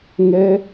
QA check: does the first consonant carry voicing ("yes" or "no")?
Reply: yes